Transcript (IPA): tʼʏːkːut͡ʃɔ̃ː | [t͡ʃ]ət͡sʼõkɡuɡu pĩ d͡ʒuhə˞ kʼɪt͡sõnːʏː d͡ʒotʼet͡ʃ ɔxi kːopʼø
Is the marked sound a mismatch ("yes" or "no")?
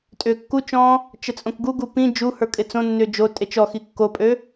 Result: no